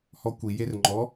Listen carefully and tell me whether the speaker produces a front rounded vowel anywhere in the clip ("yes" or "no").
no